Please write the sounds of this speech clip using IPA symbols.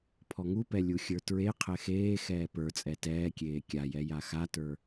pʰ ɔ ŋ u p ɛ lʲ u xʲ ə˞ t ɹ e qʰ ɛ x eː x ɛː p ə˞ t͡sʼ ɛ t ɛː kʲ eː kʲ a j ɛ j a x a t ə˞

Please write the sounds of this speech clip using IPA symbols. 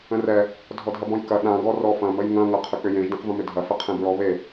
ə̃ r ɛ | dʱ ɔ dʱ ɐ b ɔ̃ j k ɐ ɗ ã ɡ ɔ r ɔ f ɐ̃ m ə j ŋ ɐ̃ ŋ ɐ qʰ ʏ k͡p ʏ j ẽ ʒ d ẽ q v ə̃ m ʏ dʱ ɐ f ə qʰ ẽ b ɹ ɔ β e

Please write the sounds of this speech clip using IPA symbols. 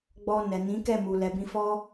ɡ͡b ɔ˧ n ɛ˨ n ĩ˨˦ k ɛ˦˨ m u˨ l ɛ˨ b ĩ˧ f ɔ˦

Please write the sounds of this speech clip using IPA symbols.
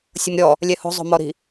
sʲ ʊ m ɾʲ ɔ | lʲ ɛ h o̤ zˤ o̤ m ɔ ɾ i̤

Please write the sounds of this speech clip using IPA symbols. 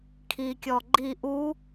kʰ i kʲ ɔ ɡ͡ǃ i ʔ u

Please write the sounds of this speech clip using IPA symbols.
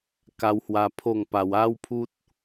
k a˧ w h w a˧ pʰ o˥˧ ŋ p a˧ w a˦ w pʰ u˦ t̚

